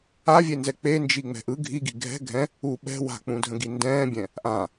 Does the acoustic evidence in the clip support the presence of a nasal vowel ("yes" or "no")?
yes